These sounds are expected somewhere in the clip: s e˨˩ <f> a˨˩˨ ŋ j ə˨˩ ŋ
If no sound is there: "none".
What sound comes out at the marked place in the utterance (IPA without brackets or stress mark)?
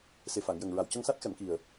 f